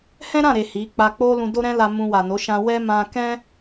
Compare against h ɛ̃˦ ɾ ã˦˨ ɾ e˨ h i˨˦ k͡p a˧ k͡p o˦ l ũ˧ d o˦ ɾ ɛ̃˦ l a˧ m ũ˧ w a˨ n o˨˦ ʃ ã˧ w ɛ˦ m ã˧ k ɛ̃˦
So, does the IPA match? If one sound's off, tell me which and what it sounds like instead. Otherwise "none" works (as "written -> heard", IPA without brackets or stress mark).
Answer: none